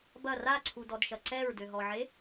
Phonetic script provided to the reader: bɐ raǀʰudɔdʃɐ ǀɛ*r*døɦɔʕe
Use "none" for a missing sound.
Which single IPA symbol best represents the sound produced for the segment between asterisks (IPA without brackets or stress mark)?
ɹ